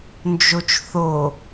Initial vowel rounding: rounded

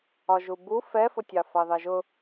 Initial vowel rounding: rounded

